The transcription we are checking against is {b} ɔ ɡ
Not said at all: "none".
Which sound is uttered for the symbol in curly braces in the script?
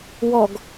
w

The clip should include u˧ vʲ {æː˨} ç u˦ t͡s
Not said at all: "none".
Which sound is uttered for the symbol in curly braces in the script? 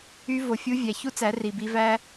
æ˨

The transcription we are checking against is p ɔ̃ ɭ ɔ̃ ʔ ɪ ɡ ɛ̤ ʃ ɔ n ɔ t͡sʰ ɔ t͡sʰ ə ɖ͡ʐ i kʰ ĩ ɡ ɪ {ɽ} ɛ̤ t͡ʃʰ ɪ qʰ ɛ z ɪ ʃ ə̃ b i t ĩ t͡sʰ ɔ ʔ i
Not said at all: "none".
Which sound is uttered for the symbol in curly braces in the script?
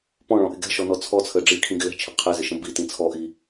l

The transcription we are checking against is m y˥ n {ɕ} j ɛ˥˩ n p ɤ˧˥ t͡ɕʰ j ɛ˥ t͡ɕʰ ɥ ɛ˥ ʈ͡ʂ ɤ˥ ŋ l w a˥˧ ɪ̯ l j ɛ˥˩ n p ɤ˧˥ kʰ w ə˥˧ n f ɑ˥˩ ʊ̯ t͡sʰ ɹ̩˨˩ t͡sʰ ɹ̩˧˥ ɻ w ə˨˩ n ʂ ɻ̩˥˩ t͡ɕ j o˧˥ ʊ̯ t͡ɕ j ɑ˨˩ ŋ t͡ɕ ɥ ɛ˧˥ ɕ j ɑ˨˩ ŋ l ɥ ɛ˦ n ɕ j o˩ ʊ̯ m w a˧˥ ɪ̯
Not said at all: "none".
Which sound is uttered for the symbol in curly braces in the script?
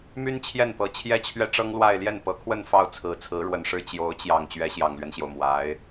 t͡ɕʰ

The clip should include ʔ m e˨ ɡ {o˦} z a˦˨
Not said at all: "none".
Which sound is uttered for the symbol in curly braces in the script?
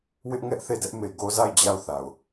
o˦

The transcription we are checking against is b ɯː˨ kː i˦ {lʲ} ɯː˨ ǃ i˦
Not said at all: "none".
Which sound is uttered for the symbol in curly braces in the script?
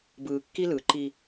l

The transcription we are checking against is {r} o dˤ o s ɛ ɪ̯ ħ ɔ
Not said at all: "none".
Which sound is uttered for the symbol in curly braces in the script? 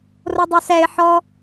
r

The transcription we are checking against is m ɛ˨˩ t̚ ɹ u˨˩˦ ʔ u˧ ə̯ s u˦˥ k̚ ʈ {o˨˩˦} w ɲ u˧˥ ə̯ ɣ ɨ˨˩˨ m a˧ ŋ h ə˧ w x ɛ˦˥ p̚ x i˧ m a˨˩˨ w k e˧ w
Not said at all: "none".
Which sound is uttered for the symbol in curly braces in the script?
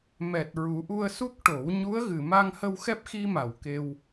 o˨˩˦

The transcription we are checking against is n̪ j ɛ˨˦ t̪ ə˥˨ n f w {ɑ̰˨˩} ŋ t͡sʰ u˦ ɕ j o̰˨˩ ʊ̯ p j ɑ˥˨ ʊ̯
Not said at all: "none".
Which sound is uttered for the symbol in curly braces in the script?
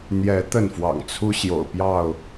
ɑ̰˨˩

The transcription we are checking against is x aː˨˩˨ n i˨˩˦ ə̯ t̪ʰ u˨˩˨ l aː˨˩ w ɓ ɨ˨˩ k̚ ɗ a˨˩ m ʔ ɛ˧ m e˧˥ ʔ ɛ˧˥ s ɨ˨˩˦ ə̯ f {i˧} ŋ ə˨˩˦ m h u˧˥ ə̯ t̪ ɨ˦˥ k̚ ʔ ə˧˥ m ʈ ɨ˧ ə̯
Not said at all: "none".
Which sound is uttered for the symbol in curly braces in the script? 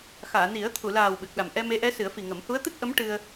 i˨˩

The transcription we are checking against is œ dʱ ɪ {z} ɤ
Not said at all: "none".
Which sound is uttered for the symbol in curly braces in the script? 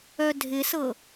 s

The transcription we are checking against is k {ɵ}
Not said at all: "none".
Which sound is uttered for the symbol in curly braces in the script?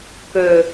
ɵ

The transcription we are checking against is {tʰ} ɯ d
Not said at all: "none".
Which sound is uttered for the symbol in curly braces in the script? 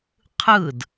qʰ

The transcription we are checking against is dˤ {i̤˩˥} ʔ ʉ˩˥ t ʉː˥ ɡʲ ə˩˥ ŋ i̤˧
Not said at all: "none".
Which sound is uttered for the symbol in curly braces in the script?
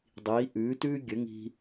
i˩˥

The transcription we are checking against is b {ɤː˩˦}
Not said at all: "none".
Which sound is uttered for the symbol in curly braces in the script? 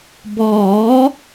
ɔː˩˦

